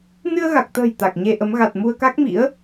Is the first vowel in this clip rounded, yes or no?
no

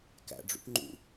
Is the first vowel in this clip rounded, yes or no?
no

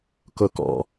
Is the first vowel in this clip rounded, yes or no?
yes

